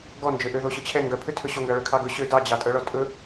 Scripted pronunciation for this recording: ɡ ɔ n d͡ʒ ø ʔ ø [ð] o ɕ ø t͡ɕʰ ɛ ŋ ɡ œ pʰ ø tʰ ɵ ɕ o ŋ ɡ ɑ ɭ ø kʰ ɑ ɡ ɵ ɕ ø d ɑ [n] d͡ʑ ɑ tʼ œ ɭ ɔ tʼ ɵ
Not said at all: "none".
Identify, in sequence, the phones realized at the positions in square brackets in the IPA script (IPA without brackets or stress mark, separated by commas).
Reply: ð, none